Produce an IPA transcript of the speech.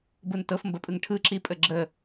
b u n t ɤ f m b ə pʼ ɯ ŋ ʈʰ ɯ ǁ i pʼ ə ɡ͡ǁ ə

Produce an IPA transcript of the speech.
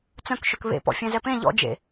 t͡s œ̃ k ʃ ɵ k β ḛ p ɔ̰ fʲ ɛ̃ z ɛ p ẽ ʎ ɔ̰ d͡ʒ ḛ

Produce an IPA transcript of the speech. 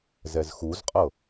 z ɛ z x u z qʼ ɤ

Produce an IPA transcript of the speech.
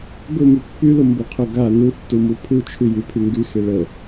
ɡ ʊ m y pː y l ʊ m b ʊ qʰ ʊ ɡ a n u tː u m u pʰ u t͡ʃʰ y j y pʰ y ŋ ɡ y x e ɭ ə

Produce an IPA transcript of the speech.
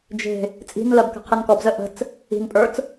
d͡ʒ e̤ | t͡sʼ i̤ n l ɜ b k ə̤ qʰ i n k ɔ b z ə ʔ ə̤ t͡s | i̤ n pʼ ə˞ t͡s

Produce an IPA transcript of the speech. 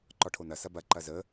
ǃ ɒ ʈʰ o n ɐ s ɐ b ɐ ǃ ɐ z ə

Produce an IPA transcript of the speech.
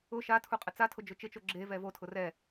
ʊ ʃ a tʰ u qʼ ɪ t͡s a tʰ ʊ d͡ʒ ʊ t͡ʃ ɪ t͡ʃ o ɡ͡ǁ e v ɛ v o tʰ ʊ r ɛ

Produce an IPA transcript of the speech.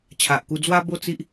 t͡ɕʰ a˨ ʔ k u˧ d͡z w a˦ b o˥˧ t͡s i˦ ʔ

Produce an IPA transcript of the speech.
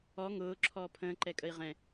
ɔ ŋ ʊː ǁʰ ɔː pʰ ə̃ː ǃ ɛ kʼ ə i̯ ʁ ɛ̃

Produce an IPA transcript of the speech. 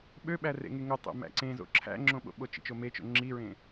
ɓ ø ɓ æ r ḛ ŋ e ŋ o tˤ o̰ m æ̰ ǀ ẽ z o̰ ǁʰ æ̰ ŋ͡ǁ õ ɓ o̰ ɓ o t͡ʃ ḭ t͡ʃ o m e t͡ʃ o̰ ŋ͡ǁ i ɹ ẽ

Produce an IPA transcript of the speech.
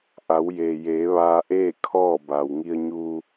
ʔ a˩˧ w j eː˩ j eː˩˧ ʋ aː˧ ʔ eː˥˨ kʰ ɔː˥˨ b a˩ w ŋ i˧ ə̯ ɲ u˧

